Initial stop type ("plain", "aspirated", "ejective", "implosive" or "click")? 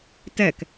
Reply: plain